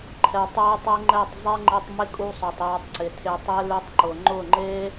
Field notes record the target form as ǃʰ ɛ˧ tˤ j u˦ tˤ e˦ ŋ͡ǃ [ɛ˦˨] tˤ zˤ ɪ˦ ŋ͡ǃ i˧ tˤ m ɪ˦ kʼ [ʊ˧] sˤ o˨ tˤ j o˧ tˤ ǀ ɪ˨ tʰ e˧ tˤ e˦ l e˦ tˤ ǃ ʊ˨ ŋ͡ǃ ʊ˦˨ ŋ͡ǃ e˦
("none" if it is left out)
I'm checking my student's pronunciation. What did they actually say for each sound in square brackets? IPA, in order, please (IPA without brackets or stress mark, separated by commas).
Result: ɛ˦˨, u˧